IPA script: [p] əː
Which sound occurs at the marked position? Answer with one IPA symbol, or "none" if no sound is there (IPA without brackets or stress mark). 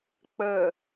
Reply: k͡p